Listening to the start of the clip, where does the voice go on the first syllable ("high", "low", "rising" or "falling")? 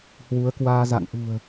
rising